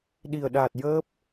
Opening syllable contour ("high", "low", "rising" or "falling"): low